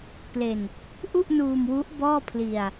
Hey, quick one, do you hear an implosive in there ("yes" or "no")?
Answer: no